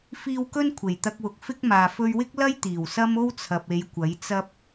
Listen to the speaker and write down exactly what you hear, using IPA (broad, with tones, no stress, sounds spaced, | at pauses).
f iː˧ w k ɵ˥ n kʷʰ e˨˩ j t̪ ɐ˧ k̚ w ʊ˨ k̚ f ɪ˥ k̚ m aː˨ f ɵ˧ ɥ w ɪ˥ k̚ l ɐ˥ j t̪ iː˨˩ w s ɐ˥ m o˥ w t͡sʰ ɐ˨ p̚ e˨˧ j kʷ ɐ˨˥ j t͡s ɐ˥ p̚